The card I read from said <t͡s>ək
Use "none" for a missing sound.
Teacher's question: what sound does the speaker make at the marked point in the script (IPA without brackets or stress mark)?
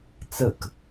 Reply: t͡s